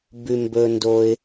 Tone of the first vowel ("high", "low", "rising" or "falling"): low